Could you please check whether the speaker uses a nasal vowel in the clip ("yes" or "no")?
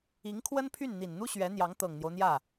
no